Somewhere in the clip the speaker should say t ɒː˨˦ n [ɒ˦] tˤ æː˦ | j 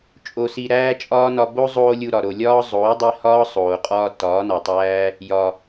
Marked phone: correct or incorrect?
incorrect